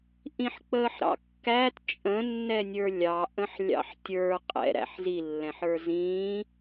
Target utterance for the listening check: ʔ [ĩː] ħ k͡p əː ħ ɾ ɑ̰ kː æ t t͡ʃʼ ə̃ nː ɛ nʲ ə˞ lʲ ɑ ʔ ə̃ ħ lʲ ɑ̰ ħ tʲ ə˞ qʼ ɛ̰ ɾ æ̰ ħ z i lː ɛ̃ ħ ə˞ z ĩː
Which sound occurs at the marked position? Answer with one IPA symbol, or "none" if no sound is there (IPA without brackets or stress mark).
ĩ